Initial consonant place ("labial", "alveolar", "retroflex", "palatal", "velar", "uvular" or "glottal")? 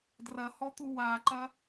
alveolar